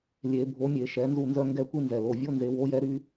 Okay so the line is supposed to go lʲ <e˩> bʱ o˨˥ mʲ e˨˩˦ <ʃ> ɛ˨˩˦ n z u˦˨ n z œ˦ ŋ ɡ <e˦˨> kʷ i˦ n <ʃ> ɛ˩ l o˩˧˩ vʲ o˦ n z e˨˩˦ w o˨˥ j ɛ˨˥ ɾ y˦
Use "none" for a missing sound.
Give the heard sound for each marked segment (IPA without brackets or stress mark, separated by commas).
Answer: e˨˩˦, ʃ, ɛ˦˨, z